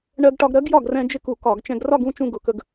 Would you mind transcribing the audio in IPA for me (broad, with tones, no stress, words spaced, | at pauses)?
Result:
ɳɜ˧ɡʈɒ˧ɡɾɜ˧˥ɡjɒ˥˩ɡ rɛ̃˧ d͡ʒɪ˥˧ku˧˩˧ kɒ˧˩˧ɡ t͡ʃɛ̃˧ɡrɒ˥˧ɡũ˥˧ t͡ʃũ˥˧ɡʊ˧˩˧kə˧ɡ